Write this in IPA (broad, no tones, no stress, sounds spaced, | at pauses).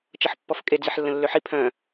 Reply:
t͡ʃ ʌ ħ pː ɔ f kʼ e d͡z i ħ lː ə̃ lː ø ħ i pʰ œ̃